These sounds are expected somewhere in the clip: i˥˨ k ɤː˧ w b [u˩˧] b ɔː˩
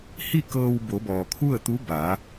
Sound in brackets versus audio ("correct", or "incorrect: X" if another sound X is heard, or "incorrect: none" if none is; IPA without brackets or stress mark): incorrect: o˩˧